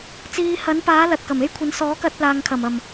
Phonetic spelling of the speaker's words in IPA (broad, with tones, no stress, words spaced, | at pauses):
t͡siː˧ hɐ˨˥npaː˨˥ lɐ˨t̚kɐ˨˩me˥j kʷʰɐ˨˥n sɔː˨˥kɐ˧t̚laː˨ŋkʰɐ˨˩m ɐ˨˩m